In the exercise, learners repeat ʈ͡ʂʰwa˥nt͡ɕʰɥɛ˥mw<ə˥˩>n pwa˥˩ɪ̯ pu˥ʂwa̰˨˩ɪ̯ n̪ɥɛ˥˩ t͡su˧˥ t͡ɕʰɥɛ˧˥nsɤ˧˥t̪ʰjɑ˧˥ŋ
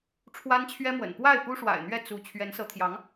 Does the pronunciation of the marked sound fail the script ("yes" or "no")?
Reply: yes